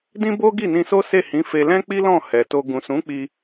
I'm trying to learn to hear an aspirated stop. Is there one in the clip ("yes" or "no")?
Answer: no